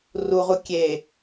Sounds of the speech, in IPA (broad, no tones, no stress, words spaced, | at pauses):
ruʁu kʲe